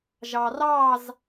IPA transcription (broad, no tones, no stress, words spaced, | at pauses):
ʒɑrɑz